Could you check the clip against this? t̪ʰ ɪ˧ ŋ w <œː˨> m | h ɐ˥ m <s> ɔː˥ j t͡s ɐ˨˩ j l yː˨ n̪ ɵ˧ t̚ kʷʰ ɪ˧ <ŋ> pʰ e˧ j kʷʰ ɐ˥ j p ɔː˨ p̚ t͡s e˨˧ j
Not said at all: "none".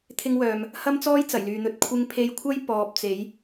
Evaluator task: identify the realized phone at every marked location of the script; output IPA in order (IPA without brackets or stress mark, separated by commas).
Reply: œː˨, t͡s, ŋ